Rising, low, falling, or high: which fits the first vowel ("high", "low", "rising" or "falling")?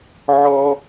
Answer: high